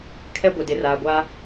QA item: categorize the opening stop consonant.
aspirated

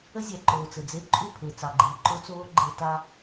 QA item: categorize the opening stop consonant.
click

